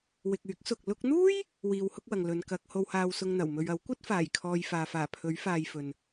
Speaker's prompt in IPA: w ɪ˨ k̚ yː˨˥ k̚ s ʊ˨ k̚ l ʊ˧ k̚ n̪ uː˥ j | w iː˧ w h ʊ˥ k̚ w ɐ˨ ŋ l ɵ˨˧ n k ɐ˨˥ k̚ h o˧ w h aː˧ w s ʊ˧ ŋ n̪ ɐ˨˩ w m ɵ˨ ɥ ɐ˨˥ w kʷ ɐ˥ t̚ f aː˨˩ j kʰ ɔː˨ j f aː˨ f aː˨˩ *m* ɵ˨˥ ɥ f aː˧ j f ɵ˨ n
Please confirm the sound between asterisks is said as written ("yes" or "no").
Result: no